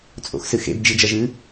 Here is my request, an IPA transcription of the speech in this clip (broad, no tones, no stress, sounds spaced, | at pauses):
t͡sʼ o̰ x s ɨ x ḛ b d͡ʒ i d͡ʒ ɐ ʒ ɨ